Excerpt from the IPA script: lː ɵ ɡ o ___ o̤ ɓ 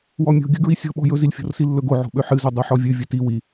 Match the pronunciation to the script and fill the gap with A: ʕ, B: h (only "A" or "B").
A